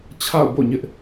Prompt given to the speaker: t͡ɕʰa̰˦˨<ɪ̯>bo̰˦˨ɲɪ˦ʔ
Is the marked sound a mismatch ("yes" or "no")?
yes